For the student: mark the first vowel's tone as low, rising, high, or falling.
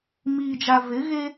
low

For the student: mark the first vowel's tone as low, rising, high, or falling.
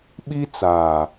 high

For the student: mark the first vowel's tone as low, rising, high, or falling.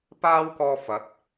high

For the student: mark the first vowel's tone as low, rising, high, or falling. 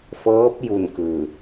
rising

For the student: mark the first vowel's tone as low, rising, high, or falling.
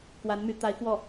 rising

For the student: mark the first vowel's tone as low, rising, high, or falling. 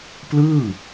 falling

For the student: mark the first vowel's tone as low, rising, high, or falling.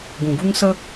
low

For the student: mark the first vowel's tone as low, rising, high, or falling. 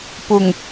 low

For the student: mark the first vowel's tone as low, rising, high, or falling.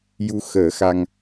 rising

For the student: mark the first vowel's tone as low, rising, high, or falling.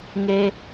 low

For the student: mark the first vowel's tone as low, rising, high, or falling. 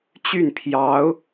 falling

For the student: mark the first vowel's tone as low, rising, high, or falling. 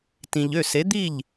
low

